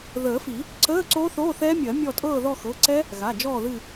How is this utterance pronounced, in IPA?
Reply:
ð əː˨˩˦ f i˨˩˦ | ǀ əː˧˥˧ ǀ o˦˥ θ oː˧˥˧ θ ɛ˦˥ mʲ ɜ˨˩˦ mʲ ɔ˦˨ tʼ ɤː˦˨ ð ɔ˦˨ x ɤ˩˧˩ ǀ ɛ˦˥ | ɣ a˩˧˩ d͡ʒ ɔː˦˨ ð ɨ˦˨

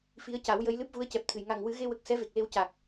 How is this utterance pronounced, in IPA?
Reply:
f i˧˥ ə̯ c a˨˩˦ w j ə˧˥ j l ɨ˦˥ p̚ v u˧˥ ə̯ c ɛ˨˩ p̚ t̪ʰ ɨ˨˩˨ j ŋ a˨˩ ŋ w ɨ˨˩˦ ɣ e˧ w ə˨˩ k̚ s ɛ˧˥ v e˨˩ k̚ l e˧ w c a˨˩ k̚

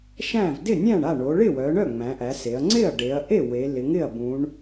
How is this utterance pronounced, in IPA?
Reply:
ʃ æ̃˥˩ v d ɪ˥˩ nʲ æ̃˥˩ ɳ a˥˩ ɳ o˩˧ ɭ ɪ˥˩ w œ˩˧ ɳ œ˥˩ ŋ͡m æ̃˩˧ ʔ æ˩˧ s e˩˧ ɐ̯ ŋ͡ǀ ɪ˥˩ ɐ̯ ɖ e˩˧ ɐ̯ ʔ e˥˩ w e˩˧ l ɪ˩˧ ŋ ɪ˥˩ ɐ̯ b ũ˩˧ ɳ

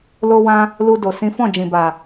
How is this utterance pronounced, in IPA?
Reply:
l o˧ w ã˧ | l u˧ d o˨ s ĩ˨˦ f ɔ̃˦˨ d͡ʒ ĩ˨ b a˨

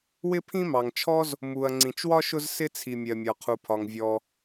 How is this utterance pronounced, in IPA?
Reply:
w ɪ˥ pʰ ĩ˥ m ɑ˩ ŋ t͡ʃʰ ɔ˥ z | m u˩ ɐ̯ ŋ͡ǀ ĩ˩ t͡ʃ w ɒ˥ ʃ ʊ˥ z s ɪ˥ t͡sʰ i˩ mʲ ɜ˩ mʲ ɒ˩ qʰ u˩ pʰ ɒ˩ ŋ vʲ ɔ˩

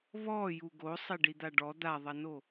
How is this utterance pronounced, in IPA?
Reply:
β ɔ j u ɡ o sˤ e ɖ i d̪ a ɖ ɔ d̪ a ðˤ ɐ n o

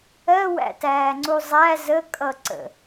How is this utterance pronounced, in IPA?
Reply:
ɜ w æ̰ t æː ŋ͡ǀ u zˤ æ z ə kʼ ʌ ǀ ə̰

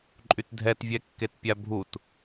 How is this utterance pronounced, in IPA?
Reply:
ǃʼ y t dʱ ɛ t vʲ ɛ kː e t pʲ a bʱ u t

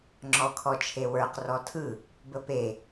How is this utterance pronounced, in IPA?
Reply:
ŋ͡ǁ ɔ kʰ ɔ t͡ʃʰ e w ə˞ q r ɔ tʰ ɯ | b ə p e

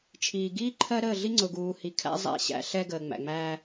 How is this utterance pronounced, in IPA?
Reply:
t͡ʃʰ iː˨ ɡ iː˦ ǃʰ ɜ˦ ɾ əː˦˨ ɮ i˦ ŋ͡ǀ ʊ˨ ɡ uː˨ h i˨ kʰ æ̰˦ zˤ æ̰˦˨ ɕ æ̰˦ ɬ ɛ˦ ɡ əː˨ ŋ͡m æ̰˨ ŋ͡m æː˦

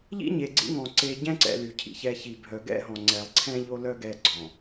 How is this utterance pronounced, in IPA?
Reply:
ʎ ḭ˦ ɲ e˨ ɡ͡ǀ ḭ˦ ŋ ɔ̃˨ ǀ e˦ ɟ ɛ̃˦ ǀ ɛ̰˨ l y˨ cʰ ḭ˦ ç ɛ˦ ç i˨ bʱ œ˨ ɡ ɛ̰˦ ɦ ɔ̃˨ ŋ͡ǀ ɛ˨ lˠ ǀʰ ɛ̃˦ ʎ o˦ l œ˦ ɡ ɛ˦ ɡ͡ǀ ɔ̃˨

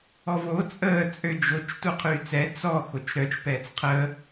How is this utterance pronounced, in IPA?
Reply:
ɔ v o t͡sʼ əː t͡sʼ ø d͡ʒ o t͡ʃ t u qʰ yː t͡s ɛ t͡s ɔ x o t͡ʃ ɾ œ t͡ʃ p ɛː t͡s qʰ əː

